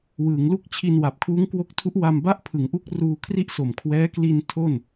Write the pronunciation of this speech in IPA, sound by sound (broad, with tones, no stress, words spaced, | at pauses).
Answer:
wɯː˩˦ŋlu˥˩k̚ t͡ɕʰi˧nwa˨˩p̚ kʰuː˦˥ŋkwo˦˥k̚tʰu˦˥ʔ wa˥˩m ba˥˩ʔpʰɯ˩˦ŋʔu˦˥k̚ ruː˧kʰri˥˩ʔso˨˩mkʰwɛː˦˥ kli˧n tʰo˥˩n